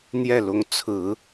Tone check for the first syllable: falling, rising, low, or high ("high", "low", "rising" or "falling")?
falling